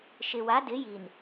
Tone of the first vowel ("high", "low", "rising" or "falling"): low